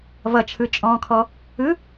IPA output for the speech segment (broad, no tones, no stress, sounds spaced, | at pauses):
v ʌ t͡ʃʰ ɯ t͡ʃʼ ɔ̃ː kʰ ɔ | ɯ